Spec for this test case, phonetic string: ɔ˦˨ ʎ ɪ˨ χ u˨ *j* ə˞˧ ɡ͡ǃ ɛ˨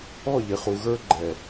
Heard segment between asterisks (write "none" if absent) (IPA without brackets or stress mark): ɣ